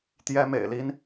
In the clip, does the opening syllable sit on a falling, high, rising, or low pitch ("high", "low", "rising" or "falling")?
high